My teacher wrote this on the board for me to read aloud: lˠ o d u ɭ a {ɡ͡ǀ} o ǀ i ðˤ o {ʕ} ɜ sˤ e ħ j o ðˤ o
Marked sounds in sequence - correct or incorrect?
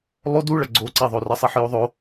correct, incorrect

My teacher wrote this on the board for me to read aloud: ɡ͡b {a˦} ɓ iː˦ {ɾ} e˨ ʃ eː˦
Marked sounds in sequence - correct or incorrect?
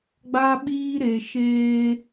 correct, correct

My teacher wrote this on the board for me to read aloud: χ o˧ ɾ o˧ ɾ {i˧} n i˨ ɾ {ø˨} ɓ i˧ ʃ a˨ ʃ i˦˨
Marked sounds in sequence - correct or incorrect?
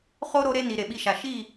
incorrect, incorrect

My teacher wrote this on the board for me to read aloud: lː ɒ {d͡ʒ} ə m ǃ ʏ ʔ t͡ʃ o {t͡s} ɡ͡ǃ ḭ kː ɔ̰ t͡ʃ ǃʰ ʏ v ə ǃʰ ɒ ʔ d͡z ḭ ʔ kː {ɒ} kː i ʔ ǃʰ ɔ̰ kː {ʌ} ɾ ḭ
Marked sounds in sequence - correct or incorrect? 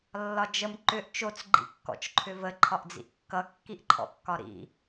correct, correct, incorrect, incorrect

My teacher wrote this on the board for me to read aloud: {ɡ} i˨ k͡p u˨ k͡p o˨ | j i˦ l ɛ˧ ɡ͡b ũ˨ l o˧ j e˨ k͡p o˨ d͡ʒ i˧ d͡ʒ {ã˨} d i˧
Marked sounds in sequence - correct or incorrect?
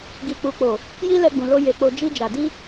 correct, incorrect

